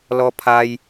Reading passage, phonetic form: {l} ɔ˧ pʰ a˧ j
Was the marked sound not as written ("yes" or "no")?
no